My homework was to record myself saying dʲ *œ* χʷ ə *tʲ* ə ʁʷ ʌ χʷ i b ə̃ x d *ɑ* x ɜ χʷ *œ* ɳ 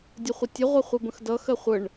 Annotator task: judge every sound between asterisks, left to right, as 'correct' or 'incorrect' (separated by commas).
incorrect, correct, incorrect, incorrect